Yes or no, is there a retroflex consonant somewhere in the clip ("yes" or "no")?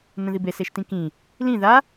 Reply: no